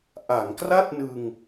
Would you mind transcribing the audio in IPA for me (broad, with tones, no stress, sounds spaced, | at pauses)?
ʔ a˩˦ ŋ k r a˥˩ t̚ n ɯ˧ ŋ